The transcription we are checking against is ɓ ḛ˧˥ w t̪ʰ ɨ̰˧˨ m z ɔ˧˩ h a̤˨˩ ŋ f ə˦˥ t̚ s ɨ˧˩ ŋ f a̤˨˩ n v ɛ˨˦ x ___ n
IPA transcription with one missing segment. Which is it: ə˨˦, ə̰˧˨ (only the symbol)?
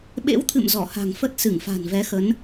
ə˨˦